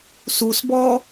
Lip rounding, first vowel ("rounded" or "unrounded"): rounded